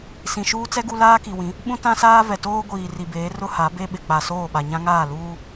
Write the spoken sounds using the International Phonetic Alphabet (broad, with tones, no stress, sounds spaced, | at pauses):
s ĩ˨ ʃ uː˦ t͡s ɛ˦ ɡ u˦ l aː˦ k i˨ w ĩ˨˦ | ɓ ũ˦ t ã˦ s aː˦ v ɛ˨ t oː˦ ɡʷ iː˨ r i˨ b eː˨˦ r ʊ˦ h a˨˦ b e˦ ɓ ɪ˨ k͡p a˨ s oː˦˨ ɓ a˨ ɲ ã˦ ŋ aː˦˨ l uː˦